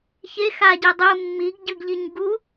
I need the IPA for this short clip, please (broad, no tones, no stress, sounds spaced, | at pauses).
ç e x a ɟ e dˤ ɯ mː i ɡ ɟ ɯ ɡ ʎ i ɲ ɡ u